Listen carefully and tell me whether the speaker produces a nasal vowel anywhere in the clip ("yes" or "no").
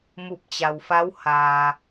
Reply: no